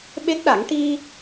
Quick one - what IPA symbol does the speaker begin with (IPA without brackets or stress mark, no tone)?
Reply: ɓ